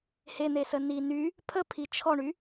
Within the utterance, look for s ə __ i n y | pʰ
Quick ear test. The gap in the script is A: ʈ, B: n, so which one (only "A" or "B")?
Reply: B